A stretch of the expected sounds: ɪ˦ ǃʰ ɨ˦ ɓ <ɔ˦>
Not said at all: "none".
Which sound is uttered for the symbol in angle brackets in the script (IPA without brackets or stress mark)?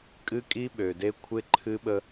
ə˦